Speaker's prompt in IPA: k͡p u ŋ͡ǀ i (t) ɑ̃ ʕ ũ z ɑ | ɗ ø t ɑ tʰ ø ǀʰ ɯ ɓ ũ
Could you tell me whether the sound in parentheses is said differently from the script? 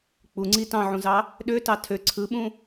no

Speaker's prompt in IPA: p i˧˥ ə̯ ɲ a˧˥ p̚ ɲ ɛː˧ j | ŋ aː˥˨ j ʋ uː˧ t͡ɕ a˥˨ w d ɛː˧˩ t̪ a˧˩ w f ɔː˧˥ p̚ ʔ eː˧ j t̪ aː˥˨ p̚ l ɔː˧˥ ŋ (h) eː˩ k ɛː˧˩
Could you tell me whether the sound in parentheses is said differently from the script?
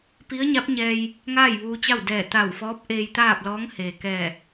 no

